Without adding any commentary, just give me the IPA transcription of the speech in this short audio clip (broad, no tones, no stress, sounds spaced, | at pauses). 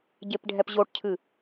ɟ e p ɖʱ ɛ p ʑ o ʈ cʰ ɨ